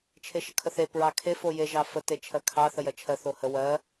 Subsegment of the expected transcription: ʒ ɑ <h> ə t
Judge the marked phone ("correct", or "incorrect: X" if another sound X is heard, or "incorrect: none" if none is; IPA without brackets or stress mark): incorrect: f